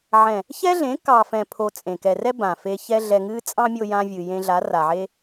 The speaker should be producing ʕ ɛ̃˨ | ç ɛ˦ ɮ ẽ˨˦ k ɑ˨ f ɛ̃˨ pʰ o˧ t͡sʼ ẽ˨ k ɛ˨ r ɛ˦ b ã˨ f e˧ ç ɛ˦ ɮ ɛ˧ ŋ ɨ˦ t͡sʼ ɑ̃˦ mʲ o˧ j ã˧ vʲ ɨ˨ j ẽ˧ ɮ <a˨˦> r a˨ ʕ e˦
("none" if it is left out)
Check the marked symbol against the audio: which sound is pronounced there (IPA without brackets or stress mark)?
a˨˦